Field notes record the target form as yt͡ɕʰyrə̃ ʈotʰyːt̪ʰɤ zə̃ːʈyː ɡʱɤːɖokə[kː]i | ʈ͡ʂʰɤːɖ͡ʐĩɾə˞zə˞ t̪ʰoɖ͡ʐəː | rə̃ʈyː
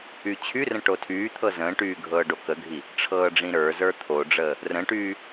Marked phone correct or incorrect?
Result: incorrect